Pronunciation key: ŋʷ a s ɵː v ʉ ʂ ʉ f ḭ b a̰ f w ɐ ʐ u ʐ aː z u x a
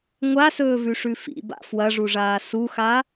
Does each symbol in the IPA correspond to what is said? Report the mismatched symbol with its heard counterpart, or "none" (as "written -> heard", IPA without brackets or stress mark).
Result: z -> s